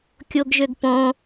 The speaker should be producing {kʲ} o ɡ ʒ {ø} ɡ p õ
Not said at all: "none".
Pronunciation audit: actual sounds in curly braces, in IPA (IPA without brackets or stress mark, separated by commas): kʲ, ø